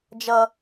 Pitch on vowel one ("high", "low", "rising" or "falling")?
high